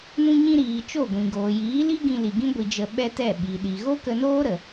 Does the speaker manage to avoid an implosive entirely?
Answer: no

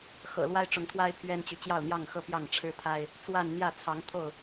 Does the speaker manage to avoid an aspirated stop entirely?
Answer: no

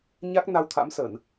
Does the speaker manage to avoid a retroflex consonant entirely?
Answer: yes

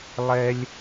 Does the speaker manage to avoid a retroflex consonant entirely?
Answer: yes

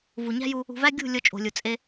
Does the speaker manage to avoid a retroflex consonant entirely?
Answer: yes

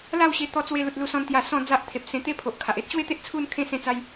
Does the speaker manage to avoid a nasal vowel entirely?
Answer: no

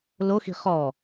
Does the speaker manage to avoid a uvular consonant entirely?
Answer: no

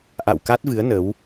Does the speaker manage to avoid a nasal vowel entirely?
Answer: yes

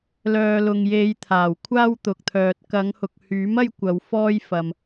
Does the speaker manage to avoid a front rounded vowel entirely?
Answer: no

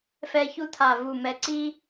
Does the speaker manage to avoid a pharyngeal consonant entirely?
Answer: yes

